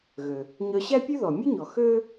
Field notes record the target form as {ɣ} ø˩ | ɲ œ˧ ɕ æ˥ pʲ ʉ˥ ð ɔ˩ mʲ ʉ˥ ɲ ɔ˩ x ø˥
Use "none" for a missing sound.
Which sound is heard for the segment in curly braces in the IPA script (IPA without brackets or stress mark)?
ɣ